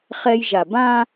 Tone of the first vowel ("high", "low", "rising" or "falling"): high